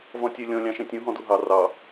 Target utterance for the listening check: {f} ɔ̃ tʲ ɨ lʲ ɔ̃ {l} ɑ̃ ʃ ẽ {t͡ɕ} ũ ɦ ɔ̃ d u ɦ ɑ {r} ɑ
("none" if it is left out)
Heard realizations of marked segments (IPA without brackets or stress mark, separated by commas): v, lʲ, tʲ, r